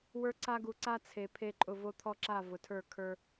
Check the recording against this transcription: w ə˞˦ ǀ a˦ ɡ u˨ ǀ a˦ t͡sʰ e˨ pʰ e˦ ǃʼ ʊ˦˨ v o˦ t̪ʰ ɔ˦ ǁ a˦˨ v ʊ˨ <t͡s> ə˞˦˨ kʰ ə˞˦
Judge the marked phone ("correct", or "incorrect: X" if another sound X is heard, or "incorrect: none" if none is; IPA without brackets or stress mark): incorrect: tʰ